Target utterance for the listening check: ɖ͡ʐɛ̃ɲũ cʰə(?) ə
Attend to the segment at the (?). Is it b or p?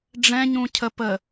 p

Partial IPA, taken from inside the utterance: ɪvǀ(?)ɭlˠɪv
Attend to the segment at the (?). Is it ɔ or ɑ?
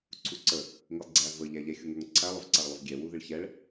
ɑ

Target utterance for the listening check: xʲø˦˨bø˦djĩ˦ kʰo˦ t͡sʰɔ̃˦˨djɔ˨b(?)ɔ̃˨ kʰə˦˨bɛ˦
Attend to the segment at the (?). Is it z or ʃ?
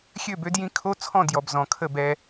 z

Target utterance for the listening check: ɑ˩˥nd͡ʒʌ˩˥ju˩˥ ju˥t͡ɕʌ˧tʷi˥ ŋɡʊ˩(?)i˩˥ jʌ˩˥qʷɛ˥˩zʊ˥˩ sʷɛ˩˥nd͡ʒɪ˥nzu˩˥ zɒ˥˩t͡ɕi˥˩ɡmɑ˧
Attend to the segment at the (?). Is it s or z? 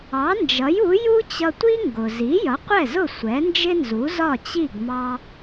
z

